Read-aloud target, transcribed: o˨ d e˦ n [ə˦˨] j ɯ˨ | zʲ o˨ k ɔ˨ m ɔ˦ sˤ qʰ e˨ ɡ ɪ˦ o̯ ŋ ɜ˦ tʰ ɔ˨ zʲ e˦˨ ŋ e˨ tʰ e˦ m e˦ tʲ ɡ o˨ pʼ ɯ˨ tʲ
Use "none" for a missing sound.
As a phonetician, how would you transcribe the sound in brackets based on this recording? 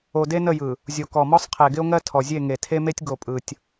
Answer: ə˦˨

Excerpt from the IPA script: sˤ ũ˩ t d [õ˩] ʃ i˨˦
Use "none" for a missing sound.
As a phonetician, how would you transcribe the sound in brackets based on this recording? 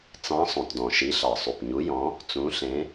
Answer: ɔ̃˩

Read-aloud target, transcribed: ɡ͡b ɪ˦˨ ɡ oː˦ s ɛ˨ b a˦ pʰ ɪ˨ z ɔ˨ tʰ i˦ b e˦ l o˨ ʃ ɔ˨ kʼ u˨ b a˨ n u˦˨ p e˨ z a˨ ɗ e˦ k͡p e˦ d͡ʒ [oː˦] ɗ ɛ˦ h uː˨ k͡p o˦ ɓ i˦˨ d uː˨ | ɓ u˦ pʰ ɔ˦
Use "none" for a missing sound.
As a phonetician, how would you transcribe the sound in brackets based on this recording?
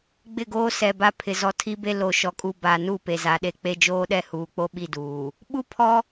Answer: oː˦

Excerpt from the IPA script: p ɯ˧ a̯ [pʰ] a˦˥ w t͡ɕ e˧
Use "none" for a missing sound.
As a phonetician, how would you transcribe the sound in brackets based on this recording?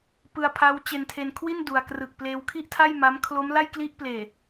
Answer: pʰ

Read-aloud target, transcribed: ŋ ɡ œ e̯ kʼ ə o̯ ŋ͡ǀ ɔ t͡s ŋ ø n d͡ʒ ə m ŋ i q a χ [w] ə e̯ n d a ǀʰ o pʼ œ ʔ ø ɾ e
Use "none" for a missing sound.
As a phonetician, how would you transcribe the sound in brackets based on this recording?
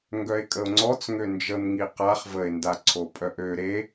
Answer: v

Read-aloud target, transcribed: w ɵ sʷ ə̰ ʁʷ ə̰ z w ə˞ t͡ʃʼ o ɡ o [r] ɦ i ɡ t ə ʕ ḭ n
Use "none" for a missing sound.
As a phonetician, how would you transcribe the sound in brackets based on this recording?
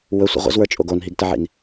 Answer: n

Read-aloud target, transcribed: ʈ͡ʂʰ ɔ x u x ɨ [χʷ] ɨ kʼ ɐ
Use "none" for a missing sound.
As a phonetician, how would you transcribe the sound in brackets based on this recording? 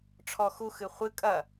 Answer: χʷ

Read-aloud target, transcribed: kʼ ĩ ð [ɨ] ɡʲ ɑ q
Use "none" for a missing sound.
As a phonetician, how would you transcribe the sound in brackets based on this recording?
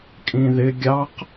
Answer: ɪ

